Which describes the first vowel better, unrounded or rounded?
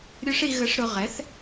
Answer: rounded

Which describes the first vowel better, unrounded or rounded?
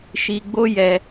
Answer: unrounded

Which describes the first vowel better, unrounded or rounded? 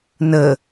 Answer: unrounded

